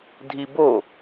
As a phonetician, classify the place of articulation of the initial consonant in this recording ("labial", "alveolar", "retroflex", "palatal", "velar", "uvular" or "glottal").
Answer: alveolar